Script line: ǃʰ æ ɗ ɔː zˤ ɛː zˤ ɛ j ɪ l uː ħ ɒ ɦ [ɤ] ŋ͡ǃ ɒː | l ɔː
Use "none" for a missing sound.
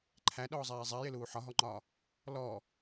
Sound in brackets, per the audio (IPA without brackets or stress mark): ɔ